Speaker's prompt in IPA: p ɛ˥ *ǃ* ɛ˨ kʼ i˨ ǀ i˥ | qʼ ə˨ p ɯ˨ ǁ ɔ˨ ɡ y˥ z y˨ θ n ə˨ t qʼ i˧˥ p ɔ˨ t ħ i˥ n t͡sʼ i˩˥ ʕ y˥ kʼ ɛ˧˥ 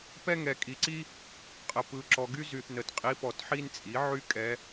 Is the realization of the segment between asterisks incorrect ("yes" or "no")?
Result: yes